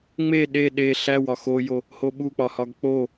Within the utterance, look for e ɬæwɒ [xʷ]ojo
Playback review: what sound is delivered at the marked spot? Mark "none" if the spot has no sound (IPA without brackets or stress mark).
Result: x